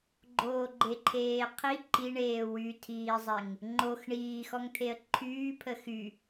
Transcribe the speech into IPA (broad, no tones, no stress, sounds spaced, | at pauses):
ɡ͡ǃ oː ɡ͡ǃ e ǃʰ eː qʰ i ǃ i ɳ eː w y tʰ iː zˤ e ŋ | ŋ͡ǃ o x ɳ iː x ɔ ŋ t̪ʰ e ə̯ ǃʰ yː pʰ ə x y